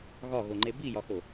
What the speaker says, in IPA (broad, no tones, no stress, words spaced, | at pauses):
ɣɒɣoŋ͡ǃe bijɒxo